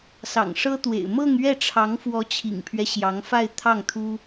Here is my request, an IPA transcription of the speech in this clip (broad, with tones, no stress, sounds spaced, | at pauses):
s ɑ̰˨˩ ŋ ʂ ɤ˥ t̪ w ḛ˨˩ ɪ̯ m ɤ˥˧ ŋ ɥ ɛ˥˩ ʈ͡ʂʰ ɑ˧˥ ŋ f w ɔ˧˥ t͡ɕʰ ḭ˨˩ ŋ pʰ ɥ ɛ˦ ɕ j ɑ˧˥ ŋ f a˥˧ ɪ̯ t̪ʰ ɑ˥˩ ŋ t̪ʰ u˥